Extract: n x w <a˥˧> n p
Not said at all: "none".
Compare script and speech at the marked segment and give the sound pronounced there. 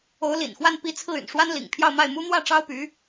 a˥˧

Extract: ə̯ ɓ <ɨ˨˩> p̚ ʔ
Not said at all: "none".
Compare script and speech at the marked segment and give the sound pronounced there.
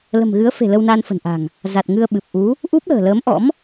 ɨ˨˩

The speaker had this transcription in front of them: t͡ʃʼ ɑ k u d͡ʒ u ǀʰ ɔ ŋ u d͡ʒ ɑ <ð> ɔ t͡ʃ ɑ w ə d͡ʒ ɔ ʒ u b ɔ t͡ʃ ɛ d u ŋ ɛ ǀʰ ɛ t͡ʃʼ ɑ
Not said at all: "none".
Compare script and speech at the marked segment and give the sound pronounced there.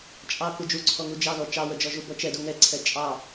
ð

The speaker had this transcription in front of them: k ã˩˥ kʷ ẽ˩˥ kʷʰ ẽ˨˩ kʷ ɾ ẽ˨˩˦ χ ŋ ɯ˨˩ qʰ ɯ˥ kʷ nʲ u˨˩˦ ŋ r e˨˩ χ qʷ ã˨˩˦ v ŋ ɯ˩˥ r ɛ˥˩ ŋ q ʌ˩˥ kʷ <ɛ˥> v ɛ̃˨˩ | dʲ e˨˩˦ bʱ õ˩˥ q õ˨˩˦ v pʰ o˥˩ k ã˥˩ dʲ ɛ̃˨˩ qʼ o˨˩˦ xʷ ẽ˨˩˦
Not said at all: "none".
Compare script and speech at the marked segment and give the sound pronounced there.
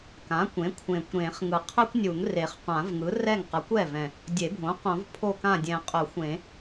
ɛ˥˩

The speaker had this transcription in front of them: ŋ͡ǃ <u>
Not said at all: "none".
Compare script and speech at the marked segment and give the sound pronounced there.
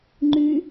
y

